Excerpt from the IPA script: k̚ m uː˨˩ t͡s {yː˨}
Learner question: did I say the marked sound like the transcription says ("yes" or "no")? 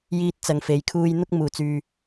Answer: yes